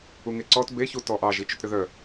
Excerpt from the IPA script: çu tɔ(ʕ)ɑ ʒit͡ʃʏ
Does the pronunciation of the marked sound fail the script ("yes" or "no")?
yes